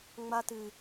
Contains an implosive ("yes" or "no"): no